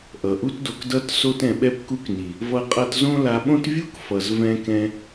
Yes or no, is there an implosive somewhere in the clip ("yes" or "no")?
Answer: yes